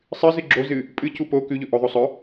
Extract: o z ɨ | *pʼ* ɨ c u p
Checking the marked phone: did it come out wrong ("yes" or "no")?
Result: no